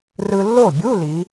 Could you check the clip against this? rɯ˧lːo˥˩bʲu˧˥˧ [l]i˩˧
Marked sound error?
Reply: no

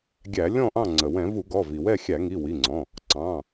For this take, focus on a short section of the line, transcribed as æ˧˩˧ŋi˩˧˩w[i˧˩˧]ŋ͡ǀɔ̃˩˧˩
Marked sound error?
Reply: yes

